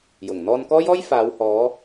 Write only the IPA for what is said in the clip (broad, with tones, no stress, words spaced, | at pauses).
jʊ˨˩ŋ n̪ɔː˧nkɔː˥jɔː˥j faː˨˧whɔː˨˧